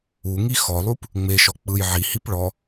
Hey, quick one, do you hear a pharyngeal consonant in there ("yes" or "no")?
yes